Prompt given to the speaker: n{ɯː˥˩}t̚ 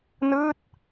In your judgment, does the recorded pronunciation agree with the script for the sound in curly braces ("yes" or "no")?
yes